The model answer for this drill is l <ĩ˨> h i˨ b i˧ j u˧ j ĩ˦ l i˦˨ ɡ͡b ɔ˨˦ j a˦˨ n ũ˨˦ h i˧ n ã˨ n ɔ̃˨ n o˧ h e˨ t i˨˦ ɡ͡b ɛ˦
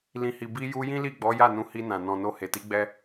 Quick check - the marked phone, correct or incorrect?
correct